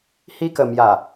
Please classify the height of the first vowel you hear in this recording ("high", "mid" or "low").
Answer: high